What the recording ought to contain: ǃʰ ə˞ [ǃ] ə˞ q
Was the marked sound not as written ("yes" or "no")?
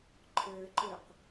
no